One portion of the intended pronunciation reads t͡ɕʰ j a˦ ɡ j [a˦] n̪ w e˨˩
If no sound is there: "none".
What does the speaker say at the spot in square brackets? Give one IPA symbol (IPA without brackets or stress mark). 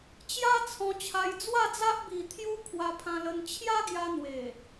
a˧